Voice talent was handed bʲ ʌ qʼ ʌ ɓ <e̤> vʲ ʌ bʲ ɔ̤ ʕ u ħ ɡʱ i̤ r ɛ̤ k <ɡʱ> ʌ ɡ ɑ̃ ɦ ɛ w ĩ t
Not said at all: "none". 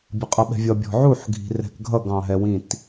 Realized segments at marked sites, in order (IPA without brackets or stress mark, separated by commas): ɛ̤, ɡʱ